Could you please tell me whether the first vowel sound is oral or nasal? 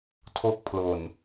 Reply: oral